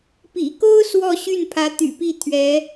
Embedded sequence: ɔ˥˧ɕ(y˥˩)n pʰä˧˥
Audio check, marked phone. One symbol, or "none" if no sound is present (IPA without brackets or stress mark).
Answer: y˥˩